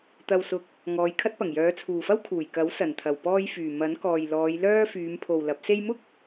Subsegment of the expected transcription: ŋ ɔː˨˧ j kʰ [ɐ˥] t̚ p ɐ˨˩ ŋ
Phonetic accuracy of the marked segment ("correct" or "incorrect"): correct